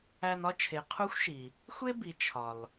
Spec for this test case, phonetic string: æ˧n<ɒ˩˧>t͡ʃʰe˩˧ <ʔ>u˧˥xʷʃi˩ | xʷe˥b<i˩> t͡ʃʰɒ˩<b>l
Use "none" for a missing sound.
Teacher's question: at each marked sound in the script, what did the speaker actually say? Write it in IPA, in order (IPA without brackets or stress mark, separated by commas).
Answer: ɒ˥, qʰ, i˩˧, none